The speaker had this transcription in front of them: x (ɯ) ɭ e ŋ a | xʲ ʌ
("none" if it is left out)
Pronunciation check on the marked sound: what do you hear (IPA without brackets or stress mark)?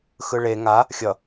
ɯ